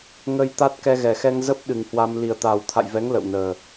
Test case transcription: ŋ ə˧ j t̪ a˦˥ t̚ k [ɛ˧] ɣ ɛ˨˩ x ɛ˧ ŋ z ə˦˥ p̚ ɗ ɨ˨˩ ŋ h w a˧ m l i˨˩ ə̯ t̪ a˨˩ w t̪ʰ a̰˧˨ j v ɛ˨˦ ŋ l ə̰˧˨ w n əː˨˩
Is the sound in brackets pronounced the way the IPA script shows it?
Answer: yes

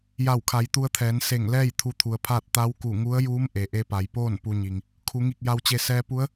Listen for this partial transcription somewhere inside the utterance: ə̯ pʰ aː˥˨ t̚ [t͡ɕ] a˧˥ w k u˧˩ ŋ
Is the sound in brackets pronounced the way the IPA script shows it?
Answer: no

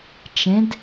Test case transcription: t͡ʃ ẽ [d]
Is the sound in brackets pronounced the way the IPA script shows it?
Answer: yes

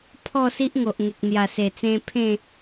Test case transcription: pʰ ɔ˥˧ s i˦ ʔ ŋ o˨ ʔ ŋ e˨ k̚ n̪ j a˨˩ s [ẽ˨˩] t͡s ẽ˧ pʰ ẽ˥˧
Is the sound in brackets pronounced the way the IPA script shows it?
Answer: no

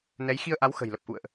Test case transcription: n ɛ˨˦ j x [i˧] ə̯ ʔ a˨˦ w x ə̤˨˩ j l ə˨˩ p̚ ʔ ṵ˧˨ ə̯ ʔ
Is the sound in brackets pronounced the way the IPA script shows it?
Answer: yes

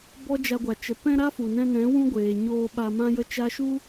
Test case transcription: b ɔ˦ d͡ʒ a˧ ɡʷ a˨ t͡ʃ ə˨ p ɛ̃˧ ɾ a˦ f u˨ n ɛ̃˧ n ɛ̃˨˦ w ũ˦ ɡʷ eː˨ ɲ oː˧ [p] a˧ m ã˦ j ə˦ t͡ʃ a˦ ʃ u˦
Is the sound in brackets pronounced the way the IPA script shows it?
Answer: no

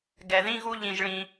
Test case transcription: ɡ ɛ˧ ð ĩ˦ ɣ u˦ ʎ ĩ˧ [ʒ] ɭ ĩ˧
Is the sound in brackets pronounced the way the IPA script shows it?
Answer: yes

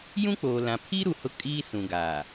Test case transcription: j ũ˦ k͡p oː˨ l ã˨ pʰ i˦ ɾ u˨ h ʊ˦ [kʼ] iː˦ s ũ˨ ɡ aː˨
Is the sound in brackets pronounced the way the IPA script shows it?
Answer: yes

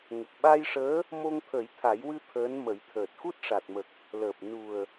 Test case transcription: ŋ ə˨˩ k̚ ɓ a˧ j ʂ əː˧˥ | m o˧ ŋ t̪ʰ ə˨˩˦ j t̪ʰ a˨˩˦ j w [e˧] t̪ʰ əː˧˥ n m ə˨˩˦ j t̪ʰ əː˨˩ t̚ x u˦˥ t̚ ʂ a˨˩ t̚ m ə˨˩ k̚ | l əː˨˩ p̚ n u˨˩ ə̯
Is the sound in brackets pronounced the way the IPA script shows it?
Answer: no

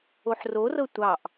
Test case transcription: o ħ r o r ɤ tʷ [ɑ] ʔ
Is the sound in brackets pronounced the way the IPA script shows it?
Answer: yes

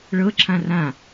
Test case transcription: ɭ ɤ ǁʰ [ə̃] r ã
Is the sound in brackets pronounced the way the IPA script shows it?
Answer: no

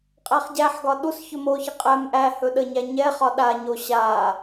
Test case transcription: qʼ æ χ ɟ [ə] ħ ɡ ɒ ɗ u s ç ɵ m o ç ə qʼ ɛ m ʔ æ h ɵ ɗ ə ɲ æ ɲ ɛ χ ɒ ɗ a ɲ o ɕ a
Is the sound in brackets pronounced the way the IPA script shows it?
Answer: no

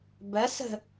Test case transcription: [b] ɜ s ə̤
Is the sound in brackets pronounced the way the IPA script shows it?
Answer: yes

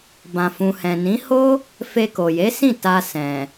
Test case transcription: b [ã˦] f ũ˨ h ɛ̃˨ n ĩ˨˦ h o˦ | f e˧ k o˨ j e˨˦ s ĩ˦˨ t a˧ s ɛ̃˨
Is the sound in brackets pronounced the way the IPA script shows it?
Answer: no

